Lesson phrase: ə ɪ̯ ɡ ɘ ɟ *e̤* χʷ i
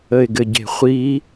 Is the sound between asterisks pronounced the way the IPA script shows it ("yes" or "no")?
yes